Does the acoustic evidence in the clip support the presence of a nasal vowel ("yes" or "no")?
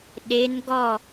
no